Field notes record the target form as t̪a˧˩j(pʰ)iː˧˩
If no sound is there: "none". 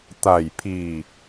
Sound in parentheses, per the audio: pʰ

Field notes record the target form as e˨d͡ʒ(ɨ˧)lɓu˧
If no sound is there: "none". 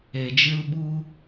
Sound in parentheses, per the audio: ɨ˧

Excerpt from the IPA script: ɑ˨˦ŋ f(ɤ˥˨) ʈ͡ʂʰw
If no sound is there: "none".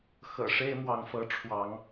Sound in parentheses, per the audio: ɤ˨˦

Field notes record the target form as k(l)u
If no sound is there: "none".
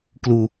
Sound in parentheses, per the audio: l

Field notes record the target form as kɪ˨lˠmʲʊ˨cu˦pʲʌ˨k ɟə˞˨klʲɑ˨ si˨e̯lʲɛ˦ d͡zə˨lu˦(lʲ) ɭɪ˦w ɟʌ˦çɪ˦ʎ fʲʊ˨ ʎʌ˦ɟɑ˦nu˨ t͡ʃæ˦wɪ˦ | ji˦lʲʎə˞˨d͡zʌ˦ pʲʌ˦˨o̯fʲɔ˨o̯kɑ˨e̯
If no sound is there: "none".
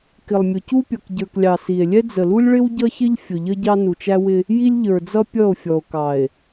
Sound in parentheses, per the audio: lʲ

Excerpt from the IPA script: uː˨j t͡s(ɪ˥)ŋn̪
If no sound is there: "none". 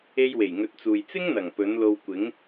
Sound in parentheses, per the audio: ɪ˥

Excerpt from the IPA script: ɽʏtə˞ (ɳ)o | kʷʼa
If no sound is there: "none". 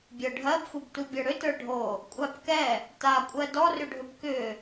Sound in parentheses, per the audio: ɖʱ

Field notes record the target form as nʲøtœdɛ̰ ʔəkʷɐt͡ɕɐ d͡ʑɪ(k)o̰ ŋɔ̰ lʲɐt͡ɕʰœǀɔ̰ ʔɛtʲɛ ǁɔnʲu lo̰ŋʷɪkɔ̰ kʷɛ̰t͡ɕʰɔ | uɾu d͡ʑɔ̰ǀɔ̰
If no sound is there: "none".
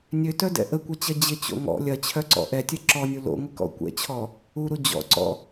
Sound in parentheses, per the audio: t͡ɕ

